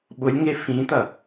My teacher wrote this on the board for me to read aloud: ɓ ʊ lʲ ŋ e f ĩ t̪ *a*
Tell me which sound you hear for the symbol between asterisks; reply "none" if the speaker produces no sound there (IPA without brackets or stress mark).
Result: ɐ